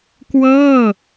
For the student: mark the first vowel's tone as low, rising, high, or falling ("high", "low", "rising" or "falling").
falling